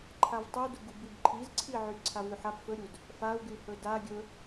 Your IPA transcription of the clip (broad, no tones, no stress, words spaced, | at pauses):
ǃʰavtˤuduɡu bibǃʰizǀʰiʕy ǀʰavyħap fɵɾʲud | fau̯ɡyhɵ da ɡʲɵ